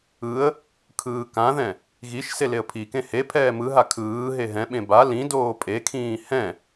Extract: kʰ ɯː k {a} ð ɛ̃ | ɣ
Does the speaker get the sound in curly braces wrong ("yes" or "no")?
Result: yes